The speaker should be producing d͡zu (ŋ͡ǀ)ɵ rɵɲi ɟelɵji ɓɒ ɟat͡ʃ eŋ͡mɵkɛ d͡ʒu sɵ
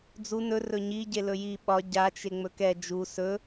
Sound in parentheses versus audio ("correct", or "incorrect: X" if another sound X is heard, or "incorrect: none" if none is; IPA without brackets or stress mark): incorrect: n